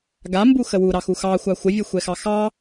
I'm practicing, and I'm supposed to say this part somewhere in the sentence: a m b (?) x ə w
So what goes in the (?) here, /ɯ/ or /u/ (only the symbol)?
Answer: u